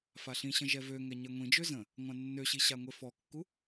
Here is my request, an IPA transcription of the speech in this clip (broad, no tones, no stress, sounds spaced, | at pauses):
f a ɬ ĩ ɕ ə̃ ʒ ɛ v ø ŋ ɛ ɲ ɛ ŋʷ ĩ d͡ʒ ø z ə̃ | ŋʷ ã nː ø ɕ i ɕ a ŋʷ e f ɔ kː u